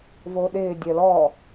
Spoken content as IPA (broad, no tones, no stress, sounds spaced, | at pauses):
v o ɗ ɪː dʲ œ l ɔ